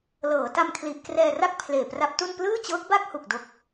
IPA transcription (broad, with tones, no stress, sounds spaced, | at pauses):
l ɤː˩˦ t a˧ m kʰ l i˨˩ ʔ k r ɛː˧ r a˥˩ k̚ pʰ l eː˨˩ p r a˦˥ p̚ t u˥˩ n p l ɯː˥˩ t͡ɕ ɤː˦˥ k̚ b a˥˩ k̚ h u˨˩ k̚ d o˦˥ k̚